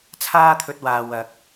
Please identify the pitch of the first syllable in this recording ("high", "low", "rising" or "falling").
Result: high